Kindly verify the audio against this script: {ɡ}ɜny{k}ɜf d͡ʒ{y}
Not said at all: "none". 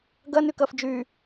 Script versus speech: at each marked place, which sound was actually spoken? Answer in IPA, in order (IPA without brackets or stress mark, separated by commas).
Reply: ɡ, k, y